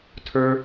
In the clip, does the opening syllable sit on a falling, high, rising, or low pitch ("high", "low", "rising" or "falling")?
high